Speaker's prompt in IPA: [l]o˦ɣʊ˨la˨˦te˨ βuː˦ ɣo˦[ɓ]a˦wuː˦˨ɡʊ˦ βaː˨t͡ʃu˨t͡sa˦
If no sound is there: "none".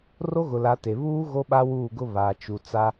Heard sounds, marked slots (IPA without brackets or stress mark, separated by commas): r, ɓ